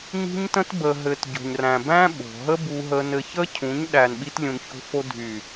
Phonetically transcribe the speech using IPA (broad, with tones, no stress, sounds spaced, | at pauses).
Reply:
ɲ i̤˦ ɲ t ə̃˦ t b ə˧ ɦ ɘ˧ t ɟ o̤˨ ɲ r æ̃˨ b æ̃˦ ɓ o̤˨ ɦ ə˦ b u˧ ɦ ə˧ n ɘ˧ ç ə˦ cʰ ũ˨˦ ɲ ɗ æ˨ n ɓ i˧ t lʲ ũ˨ n ç o̤˧ f o˧ dʱ y˨